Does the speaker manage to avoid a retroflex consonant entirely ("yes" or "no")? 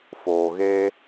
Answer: yes